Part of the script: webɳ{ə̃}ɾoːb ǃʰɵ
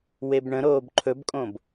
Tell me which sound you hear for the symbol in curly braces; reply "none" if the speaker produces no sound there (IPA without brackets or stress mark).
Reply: ə̃